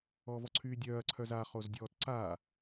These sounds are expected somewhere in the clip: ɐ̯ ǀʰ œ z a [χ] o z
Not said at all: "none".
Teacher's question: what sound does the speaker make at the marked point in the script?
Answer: χ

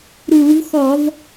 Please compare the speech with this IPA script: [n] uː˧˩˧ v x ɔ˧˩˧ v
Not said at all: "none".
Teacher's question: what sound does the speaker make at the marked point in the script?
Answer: ɾ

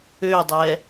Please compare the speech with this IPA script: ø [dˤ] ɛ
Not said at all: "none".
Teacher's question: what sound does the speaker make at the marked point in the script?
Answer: dˤ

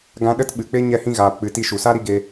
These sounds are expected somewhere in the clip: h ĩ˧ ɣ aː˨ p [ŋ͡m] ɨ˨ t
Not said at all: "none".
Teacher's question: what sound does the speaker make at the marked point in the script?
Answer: k͡p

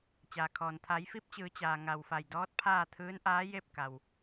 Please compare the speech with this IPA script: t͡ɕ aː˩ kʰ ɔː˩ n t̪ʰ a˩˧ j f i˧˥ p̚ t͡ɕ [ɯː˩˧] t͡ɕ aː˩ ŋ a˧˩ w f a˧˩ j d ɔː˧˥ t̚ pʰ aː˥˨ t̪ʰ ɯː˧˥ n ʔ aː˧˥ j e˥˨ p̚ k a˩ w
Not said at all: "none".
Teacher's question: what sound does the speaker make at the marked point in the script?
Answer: ɯː˩˧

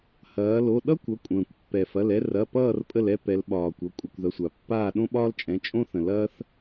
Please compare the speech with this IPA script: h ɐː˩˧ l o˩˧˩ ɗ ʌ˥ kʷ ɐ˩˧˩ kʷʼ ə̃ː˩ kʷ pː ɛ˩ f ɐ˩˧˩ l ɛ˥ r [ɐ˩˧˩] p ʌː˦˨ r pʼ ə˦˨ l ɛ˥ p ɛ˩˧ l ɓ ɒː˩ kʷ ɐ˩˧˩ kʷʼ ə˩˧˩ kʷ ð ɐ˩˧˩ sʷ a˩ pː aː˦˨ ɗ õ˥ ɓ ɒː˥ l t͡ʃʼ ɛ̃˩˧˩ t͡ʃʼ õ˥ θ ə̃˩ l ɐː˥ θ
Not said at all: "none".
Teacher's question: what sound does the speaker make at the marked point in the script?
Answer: ɐ˩˧˩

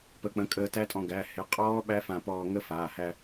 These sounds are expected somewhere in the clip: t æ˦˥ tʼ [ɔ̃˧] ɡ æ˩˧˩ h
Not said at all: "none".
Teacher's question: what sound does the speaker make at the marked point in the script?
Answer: ɔ̃˧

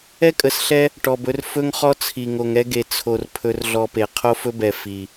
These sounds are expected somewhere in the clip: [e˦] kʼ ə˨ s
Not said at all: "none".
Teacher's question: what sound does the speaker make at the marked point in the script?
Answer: ɛ˦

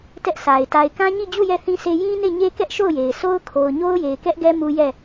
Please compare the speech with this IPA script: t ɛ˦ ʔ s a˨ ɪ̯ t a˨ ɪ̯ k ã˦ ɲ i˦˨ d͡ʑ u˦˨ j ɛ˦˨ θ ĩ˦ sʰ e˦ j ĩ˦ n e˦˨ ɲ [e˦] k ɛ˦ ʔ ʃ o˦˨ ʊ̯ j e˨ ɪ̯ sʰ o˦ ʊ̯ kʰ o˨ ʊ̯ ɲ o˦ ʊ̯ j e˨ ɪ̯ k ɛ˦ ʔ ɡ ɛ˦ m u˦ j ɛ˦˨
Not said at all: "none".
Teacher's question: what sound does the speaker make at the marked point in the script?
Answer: e˦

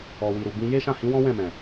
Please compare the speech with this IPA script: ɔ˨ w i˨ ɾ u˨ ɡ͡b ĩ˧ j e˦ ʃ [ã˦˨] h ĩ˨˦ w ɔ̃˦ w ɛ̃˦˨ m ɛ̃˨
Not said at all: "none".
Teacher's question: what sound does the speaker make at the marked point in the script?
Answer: ã˦˨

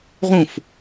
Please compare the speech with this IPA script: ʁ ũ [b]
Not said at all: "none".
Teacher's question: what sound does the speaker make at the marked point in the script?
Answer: f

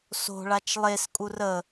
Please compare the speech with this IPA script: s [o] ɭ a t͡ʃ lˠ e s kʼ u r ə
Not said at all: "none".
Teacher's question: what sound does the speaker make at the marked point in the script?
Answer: o̤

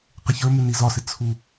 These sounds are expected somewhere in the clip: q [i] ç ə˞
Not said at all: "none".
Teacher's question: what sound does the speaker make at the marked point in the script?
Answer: ɪ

